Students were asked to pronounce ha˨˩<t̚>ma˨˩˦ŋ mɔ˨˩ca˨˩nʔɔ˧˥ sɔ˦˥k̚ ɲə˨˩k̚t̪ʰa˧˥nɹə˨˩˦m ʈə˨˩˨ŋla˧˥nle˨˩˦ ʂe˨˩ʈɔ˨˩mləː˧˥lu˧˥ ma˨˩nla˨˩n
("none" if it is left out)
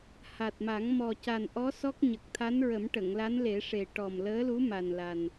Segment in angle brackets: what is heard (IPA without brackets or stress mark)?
t̚